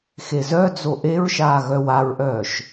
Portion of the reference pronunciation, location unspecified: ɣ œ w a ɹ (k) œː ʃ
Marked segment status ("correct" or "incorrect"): incorrect